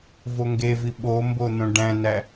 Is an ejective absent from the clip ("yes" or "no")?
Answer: yes